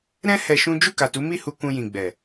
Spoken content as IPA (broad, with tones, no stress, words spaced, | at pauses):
ɾɛ̃˦ hɛ˧ʃũ˦ d͡ʒu˦˨ka˨tu˨˦ mi˦˨hu˧ kũ˧jĩ˨ ɡ͡bɛ˨